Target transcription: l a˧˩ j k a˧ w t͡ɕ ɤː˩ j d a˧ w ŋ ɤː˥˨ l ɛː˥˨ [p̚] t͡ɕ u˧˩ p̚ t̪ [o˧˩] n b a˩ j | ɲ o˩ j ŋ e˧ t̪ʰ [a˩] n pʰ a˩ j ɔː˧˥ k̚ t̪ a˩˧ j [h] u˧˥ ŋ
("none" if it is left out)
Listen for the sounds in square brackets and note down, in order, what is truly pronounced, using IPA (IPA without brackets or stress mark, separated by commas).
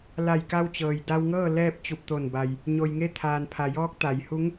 p̚, o˧˩, aː˩, h